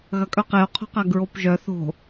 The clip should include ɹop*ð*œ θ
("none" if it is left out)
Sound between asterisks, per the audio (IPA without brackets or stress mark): ʒ